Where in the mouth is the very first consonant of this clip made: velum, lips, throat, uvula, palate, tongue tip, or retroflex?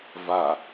lips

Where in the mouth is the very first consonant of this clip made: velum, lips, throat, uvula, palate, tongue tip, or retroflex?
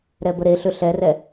tongue tip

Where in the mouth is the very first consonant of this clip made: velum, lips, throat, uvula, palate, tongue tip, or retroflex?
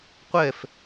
uvula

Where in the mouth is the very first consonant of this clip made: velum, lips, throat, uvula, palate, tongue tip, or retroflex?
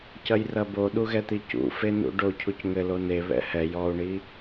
palate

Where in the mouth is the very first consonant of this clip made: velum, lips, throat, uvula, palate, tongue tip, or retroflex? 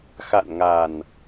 velum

